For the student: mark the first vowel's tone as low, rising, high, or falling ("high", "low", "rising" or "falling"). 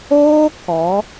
high